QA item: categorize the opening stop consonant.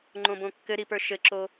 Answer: click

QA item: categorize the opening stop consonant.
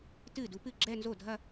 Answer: plain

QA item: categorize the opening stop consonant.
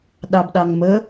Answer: implosive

